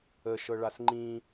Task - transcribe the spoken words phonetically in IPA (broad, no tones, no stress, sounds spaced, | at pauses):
ə ʃ ɤ ɭ a s ŋ͡ǃ ĩ